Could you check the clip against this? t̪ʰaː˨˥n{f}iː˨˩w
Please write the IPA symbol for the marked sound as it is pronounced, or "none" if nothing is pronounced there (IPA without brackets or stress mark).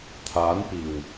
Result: p